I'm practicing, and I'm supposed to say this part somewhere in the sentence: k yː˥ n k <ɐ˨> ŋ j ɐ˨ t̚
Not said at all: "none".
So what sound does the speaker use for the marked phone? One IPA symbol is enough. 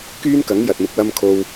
ɐ˨˥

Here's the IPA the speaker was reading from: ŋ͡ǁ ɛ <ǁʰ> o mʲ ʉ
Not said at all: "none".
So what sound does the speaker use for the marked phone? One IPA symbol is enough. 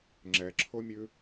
ǁʰ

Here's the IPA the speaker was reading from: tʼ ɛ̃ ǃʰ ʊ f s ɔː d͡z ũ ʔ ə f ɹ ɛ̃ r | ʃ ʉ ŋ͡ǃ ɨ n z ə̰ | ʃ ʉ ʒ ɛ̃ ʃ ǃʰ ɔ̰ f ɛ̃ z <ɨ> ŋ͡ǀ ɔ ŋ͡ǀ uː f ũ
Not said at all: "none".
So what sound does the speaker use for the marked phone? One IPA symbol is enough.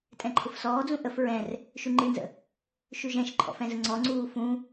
ə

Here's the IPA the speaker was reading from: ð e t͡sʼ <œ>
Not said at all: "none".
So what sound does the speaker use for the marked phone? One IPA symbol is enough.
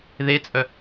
œ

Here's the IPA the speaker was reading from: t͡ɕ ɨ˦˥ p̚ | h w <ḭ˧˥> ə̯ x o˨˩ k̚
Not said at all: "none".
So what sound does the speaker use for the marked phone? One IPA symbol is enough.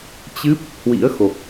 ḭ˧˥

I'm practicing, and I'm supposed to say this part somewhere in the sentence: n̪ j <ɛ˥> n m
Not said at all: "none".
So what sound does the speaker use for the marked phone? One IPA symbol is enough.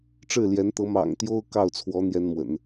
ɛ˥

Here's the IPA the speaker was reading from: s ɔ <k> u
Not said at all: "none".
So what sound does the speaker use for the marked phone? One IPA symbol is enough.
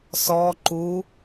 ǃ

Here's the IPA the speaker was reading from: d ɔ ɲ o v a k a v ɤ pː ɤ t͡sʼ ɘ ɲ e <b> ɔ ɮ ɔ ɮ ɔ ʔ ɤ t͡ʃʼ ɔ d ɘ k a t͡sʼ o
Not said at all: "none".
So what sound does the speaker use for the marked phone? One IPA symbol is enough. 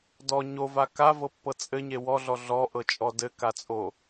w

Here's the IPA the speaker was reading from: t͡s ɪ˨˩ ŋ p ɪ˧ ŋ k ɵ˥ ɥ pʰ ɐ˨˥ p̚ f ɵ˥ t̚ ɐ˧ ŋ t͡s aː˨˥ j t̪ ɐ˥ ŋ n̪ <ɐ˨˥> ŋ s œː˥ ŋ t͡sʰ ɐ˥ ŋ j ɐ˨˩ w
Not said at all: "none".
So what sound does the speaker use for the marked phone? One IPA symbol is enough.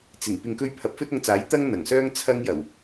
ɐ˨˩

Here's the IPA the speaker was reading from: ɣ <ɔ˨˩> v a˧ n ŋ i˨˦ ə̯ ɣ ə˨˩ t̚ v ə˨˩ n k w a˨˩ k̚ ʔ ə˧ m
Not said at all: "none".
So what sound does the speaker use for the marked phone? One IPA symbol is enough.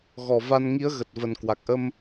ɔ˨˩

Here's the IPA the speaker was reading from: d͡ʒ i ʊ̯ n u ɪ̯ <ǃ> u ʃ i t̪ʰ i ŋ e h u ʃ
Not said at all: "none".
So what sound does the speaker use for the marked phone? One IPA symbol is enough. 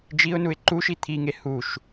ǃ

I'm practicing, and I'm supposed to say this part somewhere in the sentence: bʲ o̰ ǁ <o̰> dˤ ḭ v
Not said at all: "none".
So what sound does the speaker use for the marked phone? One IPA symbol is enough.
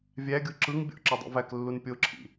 o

